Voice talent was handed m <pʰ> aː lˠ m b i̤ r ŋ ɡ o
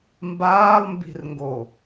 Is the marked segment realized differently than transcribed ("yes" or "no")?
yes